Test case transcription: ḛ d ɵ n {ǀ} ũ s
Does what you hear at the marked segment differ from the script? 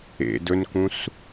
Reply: yes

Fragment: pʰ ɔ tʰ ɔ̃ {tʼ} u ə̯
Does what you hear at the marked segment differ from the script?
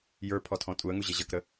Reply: no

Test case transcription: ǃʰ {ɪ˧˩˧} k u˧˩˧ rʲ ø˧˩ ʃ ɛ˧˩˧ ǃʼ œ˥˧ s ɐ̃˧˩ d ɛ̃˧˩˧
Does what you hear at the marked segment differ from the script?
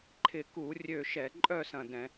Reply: no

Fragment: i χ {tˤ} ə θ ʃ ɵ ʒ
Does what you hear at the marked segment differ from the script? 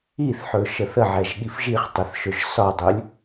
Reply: no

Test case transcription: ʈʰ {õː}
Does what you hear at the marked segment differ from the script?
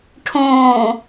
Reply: no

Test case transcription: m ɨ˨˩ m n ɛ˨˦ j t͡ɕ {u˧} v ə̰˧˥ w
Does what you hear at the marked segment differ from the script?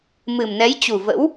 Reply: yes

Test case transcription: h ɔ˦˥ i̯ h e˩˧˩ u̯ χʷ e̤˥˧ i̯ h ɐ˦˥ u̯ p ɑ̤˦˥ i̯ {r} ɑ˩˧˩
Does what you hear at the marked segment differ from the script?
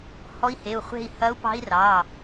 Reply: no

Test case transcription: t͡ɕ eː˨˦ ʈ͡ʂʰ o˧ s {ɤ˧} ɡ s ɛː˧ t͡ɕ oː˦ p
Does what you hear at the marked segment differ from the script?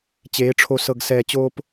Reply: no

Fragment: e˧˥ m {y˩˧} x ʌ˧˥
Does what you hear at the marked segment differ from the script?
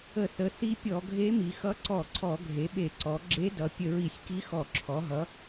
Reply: yes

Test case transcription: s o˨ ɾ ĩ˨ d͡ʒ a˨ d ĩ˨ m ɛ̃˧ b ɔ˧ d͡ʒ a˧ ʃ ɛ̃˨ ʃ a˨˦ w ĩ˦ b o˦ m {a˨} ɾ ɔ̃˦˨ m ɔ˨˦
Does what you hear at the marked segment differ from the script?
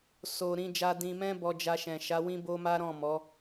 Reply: yes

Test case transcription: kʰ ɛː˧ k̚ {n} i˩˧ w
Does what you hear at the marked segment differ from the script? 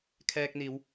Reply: no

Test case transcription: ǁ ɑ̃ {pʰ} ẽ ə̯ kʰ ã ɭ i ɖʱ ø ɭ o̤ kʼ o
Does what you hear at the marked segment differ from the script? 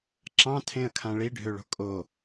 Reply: yes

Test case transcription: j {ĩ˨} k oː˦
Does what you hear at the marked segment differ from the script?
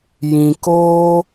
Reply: no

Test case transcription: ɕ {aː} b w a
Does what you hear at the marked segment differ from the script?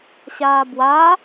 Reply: no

